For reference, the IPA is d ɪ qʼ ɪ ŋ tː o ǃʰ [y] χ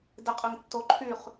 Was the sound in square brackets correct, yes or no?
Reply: yes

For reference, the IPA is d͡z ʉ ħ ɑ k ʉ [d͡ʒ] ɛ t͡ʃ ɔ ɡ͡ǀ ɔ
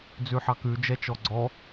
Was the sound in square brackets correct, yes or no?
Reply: yes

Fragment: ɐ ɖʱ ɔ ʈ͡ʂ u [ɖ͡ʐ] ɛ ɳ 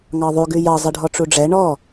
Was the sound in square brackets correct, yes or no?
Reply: yes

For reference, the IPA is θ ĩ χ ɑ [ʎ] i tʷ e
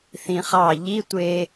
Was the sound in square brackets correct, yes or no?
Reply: yes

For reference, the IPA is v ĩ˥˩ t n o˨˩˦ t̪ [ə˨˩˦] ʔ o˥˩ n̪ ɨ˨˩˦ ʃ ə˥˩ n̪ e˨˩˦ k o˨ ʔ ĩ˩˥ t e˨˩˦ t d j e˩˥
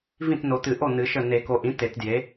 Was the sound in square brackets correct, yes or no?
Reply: no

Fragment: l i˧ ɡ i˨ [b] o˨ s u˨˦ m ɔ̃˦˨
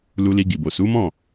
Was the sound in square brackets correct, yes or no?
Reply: yes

